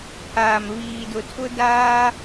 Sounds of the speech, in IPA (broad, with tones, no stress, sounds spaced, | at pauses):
pʰ aː˨ m β iː˨ d ʊ˨ tʰ ʊ˦ d aː˦